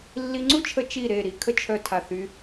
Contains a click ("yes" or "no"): yes